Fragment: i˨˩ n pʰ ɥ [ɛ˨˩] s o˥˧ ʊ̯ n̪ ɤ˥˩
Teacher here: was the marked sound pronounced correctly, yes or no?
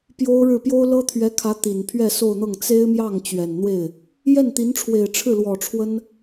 no